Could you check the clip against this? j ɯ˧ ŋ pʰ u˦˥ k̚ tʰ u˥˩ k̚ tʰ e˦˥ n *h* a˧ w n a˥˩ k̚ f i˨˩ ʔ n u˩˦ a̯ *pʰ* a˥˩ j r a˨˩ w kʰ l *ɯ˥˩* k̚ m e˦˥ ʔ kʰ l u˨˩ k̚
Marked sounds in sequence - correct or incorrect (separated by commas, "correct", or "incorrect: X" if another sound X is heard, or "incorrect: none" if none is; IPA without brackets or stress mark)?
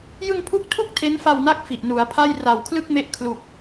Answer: incorrect: f, correct, correct